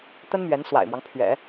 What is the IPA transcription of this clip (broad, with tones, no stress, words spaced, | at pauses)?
t̪ə˥nmɥɛ˧˥nswa̰˨˩ɪ̯mwɑ˦ŋ pʰɥɛ̰˨˩˦